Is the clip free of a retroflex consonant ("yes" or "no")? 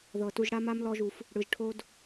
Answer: no